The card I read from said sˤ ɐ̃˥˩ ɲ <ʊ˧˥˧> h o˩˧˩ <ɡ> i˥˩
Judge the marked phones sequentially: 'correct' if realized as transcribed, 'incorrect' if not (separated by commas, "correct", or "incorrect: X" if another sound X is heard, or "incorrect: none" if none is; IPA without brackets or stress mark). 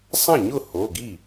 incorrect: ʊ˥˩, correct